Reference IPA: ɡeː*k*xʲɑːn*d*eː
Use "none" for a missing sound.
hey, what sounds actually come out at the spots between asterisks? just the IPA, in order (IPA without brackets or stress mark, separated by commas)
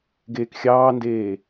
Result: k, d